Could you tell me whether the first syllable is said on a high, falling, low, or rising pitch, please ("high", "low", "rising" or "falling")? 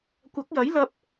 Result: rising